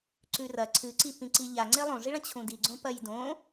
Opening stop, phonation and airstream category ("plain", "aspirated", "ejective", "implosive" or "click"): click